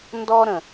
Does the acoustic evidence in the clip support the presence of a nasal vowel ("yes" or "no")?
yes